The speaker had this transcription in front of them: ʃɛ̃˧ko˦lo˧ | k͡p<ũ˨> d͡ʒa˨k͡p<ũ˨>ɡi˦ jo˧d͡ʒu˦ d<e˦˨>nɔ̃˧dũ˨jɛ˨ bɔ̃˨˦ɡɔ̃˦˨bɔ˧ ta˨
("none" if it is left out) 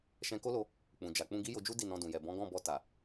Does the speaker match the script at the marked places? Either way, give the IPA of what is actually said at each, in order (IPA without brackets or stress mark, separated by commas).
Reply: ũ˨, ũ˧, i˦˨